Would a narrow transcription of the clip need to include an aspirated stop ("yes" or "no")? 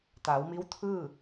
yes